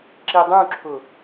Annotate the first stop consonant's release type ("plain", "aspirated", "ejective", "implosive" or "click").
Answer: click